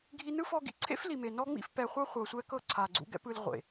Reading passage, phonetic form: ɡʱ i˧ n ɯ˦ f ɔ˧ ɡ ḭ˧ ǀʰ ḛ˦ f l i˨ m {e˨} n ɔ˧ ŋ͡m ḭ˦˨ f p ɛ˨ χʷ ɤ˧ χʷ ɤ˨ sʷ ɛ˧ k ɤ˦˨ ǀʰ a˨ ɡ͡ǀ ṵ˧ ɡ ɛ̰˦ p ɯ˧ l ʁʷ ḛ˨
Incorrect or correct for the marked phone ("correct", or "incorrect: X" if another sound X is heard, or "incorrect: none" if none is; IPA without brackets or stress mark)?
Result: correct